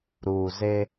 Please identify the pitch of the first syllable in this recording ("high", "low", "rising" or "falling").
low